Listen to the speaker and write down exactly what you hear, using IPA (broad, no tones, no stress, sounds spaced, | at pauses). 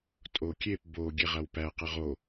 tʼ o kʲ e p b o ɡʲ e ʁ a w p æ q ə ʁ o